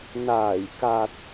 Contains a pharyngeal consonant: no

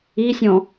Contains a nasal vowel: yes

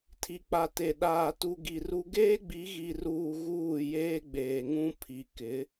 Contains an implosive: yes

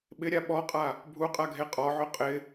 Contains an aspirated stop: no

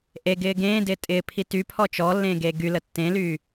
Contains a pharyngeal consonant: no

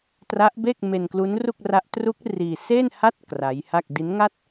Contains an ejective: no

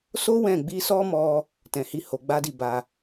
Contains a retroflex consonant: no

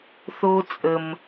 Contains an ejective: yes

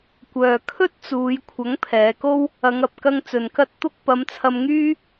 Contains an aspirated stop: yes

